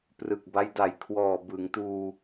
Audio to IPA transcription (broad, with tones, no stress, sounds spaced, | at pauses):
p r ɯ˨˩ k̚ b a˦˥ j d a˨˩ j kʰ w ɔː˨˩ b ɯ˩˦ ŋ t uː˧